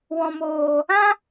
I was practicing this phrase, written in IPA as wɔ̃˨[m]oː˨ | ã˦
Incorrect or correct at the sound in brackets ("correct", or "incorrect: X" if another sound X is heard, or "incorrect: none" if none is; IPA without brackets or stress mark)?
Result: correct